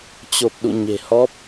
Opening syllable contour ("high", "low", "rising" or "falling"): low